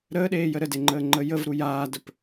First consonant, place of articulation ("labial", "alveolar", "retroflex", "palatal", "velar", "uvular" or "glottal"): alveolar